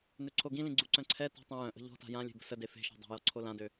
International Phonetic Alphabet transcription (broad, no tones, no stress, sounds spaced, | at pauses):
n ø ǀʰ o ɡ ĩ l ĩ ɡ͡ǀ u ǀ œ̃ ǀʰ ɛ t ɔ̤ tˤ ĩ j œ̃ ʔ ə̤ ʎ ɔ̤ t a̤ j ã lʲ e̤ b ə̤ s ə d e f e̤ ʃ ɔ̤ dˤ a̤ j ɔ ǀʰ o l ã d ø